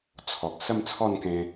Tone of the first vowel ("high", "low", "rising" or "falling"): low